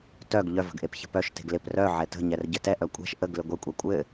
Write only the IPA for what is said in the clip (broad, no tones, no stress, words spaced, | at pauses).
tœɡ ʎœvə̤ɡʔep çə̤pœʃ te̤ɡlɪp rœ ʕɛtə̤ɲɛr ɟɘtɛʔ œkʷʼɛ̤ʃ ʔəɡlɪ ɡʷɪ kʷʼɛkʷʼɘ